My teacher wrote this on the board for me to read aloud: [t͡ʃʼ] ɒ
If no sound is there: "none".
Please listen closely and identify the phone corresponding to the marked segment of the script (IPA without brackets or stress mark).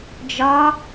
d͡ʒ